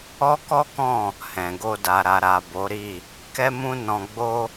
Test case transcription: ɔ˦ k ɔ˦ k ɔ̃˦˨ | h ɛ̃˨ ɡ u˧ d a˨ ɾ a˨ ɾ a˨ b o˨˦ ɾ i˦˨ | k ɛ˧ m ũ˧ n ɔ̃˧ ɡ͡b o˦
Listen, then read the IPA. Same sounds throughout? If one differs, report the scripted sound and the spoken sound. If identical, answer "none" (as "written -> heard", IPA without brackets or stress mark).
u˧ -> o˧